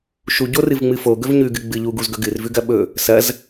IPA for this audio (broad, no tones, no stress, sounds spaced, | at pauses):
ʃ u ɟ o r ɨ v ŋ͡m ɨ f o ɡ ɵ v ɲ ʉ ɡ ɨ ɡ͡b ɨ ʎ u ɡ u z ɡ ɵ ɡ ɨ r v ʉ ɡ ɐ ɓ ɵ | s ɐ z